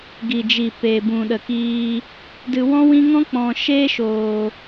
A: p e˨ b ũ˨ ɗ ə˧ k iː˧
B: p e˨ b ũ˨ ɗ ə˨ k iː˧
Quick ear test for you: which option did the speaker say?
B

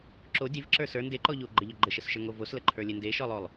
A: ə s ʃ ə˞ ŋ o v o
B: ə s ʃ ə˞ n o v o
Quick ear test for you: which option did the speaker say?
A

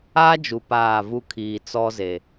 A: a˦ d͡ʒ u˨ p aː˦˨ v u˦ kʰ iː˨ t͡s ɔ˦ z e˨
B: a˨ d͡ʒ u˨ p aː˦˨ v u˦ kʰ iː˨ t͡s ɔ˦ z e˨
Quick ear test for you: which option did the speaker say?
A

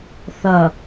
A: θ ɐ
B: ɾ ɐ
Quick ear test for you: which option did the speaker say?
A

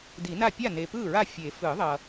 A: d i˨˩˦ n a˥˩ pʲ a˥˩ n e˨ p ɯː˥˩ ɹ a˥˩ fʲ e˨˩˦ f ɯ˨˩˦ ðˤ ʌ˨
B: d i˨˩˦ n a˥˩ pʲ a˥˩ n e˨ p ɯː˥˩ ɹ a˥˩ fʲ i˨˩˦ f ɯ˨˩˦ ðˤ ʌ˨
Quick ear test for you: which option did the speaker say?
A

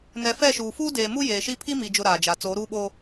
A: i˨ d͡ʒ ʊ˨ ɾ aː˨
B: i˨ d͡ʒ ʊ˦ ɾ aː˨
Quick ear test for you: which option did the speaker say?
B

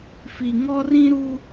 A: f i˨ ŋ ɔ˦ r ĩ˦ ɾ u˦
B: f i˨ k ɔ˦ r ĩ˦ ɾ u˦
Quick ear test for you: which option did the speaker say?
A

